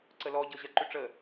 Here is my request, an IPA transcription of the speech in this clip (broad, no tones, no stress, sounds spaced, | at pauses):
ǀ ə l ɔ ɟ ɤ ʑ ɜ ǃ ʏ ʈ͡ʂ ə